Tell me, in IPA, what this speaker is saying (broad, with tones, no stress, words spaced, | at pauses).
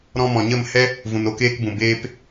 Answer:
ɾɔ̃˧mɔ̃˨ɲə˦˨mhɛ˦ | vũ˨no˧keː˧kbũ˨ beː˧p